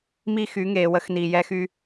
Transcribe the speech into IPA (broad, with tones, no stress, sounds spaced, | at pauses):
m i˦ x y˨˦ ŋ eː˨ w ə˦ x n iː˨ j ɛ˦ x y˦